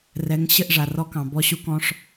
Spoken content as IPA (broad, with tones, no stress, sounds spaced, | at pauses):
r ɛ˨˦ ŋ ɕ ɘ˦˨ ʔ ʐ a˨ r ɔ˧ k ɑ̃˨ b ɔ˧ ɕ u˧ k ɔ̃˧ ʂ